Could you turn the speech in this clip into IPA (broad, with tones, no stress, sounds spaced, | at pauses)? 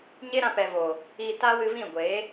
ɲ e˦ ɾ ã˧ p ɛ˨ v oː˨ | i˧ t a˦ w ɨ˧ v ĩ˦˨ ɡʷ eː˨˦